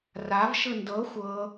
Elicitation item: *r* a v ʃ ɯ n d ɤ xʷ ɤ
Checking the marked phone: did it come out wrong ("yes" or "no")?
no